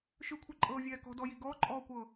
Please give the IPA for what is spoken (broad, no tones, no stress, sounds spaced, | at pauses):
ʃ ɯ kʷʰ ɯ ǃʼ ɤː vʲ ɛː k ɔ̤ d ɔ j i ɡ ɔː ǃʼ ɔː kʷ ɤː